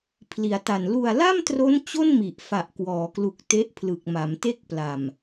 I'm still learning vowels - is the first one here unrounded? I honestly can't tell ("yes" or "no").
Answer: yes